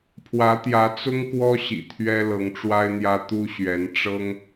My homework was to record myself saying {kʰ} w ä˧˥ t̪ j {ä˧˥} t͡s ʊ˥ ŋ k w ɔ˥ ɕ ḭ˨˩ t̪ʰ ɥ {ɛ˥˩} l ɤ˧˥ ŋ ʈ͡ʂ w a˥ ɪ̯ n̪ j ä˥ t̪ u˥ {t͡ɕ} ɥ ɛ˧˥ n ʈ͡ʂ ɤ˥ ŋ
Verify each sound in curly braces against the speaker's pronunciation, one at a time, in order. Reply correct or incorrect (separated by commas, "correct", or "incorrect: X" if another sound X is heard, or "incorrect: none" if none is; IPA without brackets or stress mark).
incorrect: pʰ, correct, incorrect: ɛ˥, incorrect: ɕ